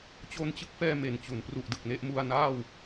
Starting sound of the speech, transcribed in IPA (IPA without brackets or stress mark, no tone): t͡ɕ